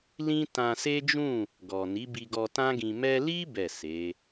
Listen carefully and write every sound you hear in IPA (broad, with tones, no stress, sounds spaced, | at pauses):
l ĩ˦ t ã˧ s e˦ d͡ʒ ũ˦˨ | ɡ ɔ˨ n i˨˦ b i˧ ɡ ɔ˧ t ã˦ ɡ ĩ˧ m ɛ˧ l i˦ b ɛ˦˨ s e˨˦